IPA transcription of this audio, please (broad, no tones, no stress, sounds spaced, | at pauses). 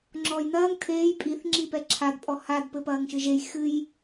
ŋ͡ǁ ɔː j n ɐː ŋ tʰ eː j pʼ i θ ŋ͡ǁ i p ɛ ǁʰ a d pʼ ɔ h a d p ɘ p ɐː ŋ ʃ ɨ ʒ e j x ɨ j